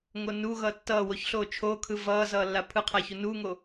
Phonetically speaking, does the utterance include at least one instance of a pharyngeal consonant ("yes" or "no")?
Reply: no